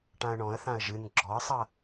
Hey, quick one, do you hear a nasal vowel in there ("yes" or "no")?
yes